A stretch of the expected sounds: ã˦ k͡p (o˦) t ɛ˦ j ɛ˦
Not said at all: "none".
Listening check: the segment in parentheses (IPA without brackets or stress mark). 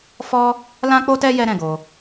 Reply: o˦